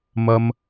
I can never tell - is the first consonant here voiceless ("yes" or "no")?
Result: no